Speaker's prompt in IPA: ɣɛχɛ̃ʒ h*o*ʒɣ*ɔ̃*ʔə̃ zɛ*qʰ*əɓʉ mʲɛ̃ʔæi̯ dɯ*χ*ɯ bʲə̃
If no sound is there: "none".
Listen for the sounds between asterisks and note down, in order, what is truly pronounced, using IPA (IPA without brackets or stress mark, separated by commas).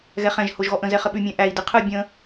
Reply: o, ɔ, χ, qʰ